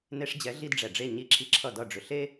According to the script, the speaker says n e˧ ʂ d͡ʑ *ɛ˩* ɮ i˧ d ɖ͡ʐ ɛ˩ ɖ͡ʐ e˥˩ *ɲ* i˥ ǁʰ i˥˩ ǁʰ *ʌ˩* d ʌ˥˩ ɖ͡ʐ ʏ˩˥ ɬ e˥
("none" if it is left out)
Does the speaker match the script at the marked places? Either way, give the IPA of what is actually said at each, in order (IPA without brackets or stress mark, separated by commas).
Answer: ɛ˩˥, ɲ, ʌ˥˩